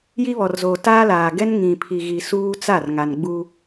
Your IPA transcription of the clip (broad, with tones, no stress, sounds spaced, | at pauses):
j i˦ β ɔ˨ r z oː˨ t aː˦ l aː˨ ɡ ɛ˦ n ŋ ĩ˨ pʰ i˨ ɣ i˨ s uː˦ t͡s a˦˨ r ŋ a˨ n ɡ͡b u˦